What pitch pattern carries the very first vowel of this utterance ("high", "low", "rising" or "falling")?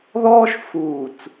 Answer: high